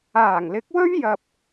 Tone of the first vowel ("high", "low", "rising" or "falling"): low